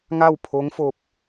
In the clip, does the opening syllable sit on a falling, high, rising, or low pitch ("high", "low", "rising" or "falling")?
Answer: falling